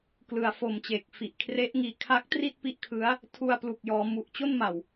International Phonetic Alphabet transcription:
k l ɯ˨˩ a̯ f o˨˩ m t͡ɕ eː˨˩ k̚ f i˨˩ ʔ kʰ r e˦˥ ʔ ŋ iː˧ kʰ a˦˥ k̚ t r i˥˩ t̚ p i˦˥ ʔ kʰ ɯ˦˥ a̯ | tʰ u˧ a̯ p l u˨˩ k̚ j ɔː˩˦ m u˨˩ ʔ t͡ɕ o˥˩ n m a˨˩ w

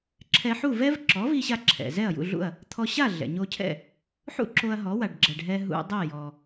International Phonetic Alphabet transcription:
ǁʰ ɛ˧ ħ u˥˩ v ɛ˥ v ǁ ɔ˩˥ v i˧ ɕ a˧ ǁʰ ɛ̰˩ z ɛ˥˩ ɐ̯ j ṵ˥˩ ɮ ṵ˥˩ ɐ̯ | t̪ʰ ɔ˧ ɕ a˥˩ ɮ ɛ̰˩ ɲ o˧ cʰ ɛ̰˥˩ | ħ ṵ˥ ǁ o˧ ɐ̯ ɦ ɔ˩˥ w a˩ ɖ ɡ͡ǁ ɛ˩ ɖ ɦ ɛ˧ ɦ ṵ˧ dˤ ɛ˥˩ j ɔ˩

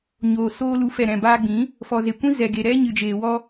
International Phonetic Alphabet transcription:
ɲ oː˨ s oː˧ l u˨˦ f ɛ˨ ɾ ɛ̃˨ b aː˧ ɡ͡b ĩ˨˦ | f ɔ˨ z e˨ kʷ ĩ˦ z ɛ˨ ɡ e˨ ɾ ɛ˦ ɲ ɨ˧ d͡ʒ eː˧ w ɔ˦

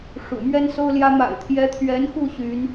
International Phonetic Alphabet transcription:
ʂ ṵ˨˩ m ɥ ɛ˥ n s o˥ ʊ̯ l j ä˥ m a̰˨˩ ɪ̯ t̪ʰ j ɛ˧˥ t̪ʰ ɥ ɛ˧˥ n x u˥˩ ɕ y˧˥ n

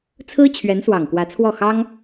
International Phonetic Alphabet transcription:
t͡sʰ ɹ̩˥ t͡ɕʰ ɥ ɛ˧˥ n s w ɑ˨˩ ŋ k w ä˧˥ t͡sʰ w ɔ˥˩ x ɑ˥ ŋ

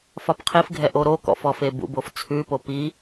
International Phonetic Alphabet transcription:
f ɒ p qʰ i f ɡʱ ɛ ʔ o ɾ o k ɔ̰ f ɔ f e b ṵ b o f t͡sʰ ʉ p o p i

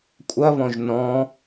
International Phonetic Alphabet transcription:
kʷʼ ɐ β ɔ̃ ʒ n ɔ̃

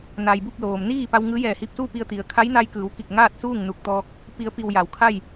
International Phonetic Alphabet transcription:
n a˩ j b u˥˨ p̚ l oː˩ m n iː˥˨ p a˧ w ŋ ɯː˧˥ j ɛː˧˩ h i˧ p̚ s uː˥˨ p i˧ ə̯ t̪ i˩ ə̯ kʰ a˧˥ j n a˧ j k ɯː˩˧ w k i˧˩ k̚ ŋ aː˥˨ t̚ s uː˥˨ ŋ n u˧˩ k̚ t̪ ɔː˧ k̚ | p i˩˧ ə̯ p i˩ w j a˩˧ w kʰ a˥˨ j

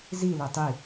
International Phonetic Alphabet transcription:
z i l e tˤ i

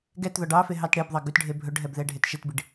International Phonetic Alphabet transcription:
ɡ ɛ t ð ɔ ɖ ɑ f e ɦ ɑ t ɽ e b ðˤ ɑ ɡ ʉ t ɖʱ e bʱ ɵ ɖ ɦ ɛ b ð ɛ ɖʱ e t ʃ e t b i ɖ

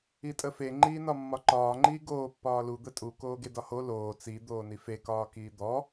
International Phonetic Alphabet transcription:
i tʼ ə f e ŋ͡ǃ iː n ɒ mː ɒ ǃ ɒː ŋ͡ǃ iː ɡ oː pː ɒː l u d̪ ə tʼ u k oː ɡ e d ɒ h o l oː t͡s i d̪ oː n i f e k ɒː k iː d̪ ɔ

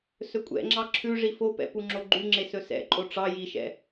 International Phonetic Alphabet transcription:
s ɵ kʷʼ ɛ̰ ŋ͡ǁ ɑ ǁʰ ʉ ʐ i f o p ɛ̰ p u ŋ͡ǁ o ɡ͡ǃ y ŋ͡ǁ e s ɵ s ɛ̰ ǃʼ o ʈ͡ʂ ɑ j i ʃ ɛ̰

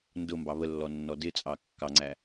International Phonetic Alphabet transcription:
n d ʊ m b ɑ β ə lː ɔ nː ɔ d ɪ t͡sʼ ɑ kː ɑ ŋ͡ǀ æ

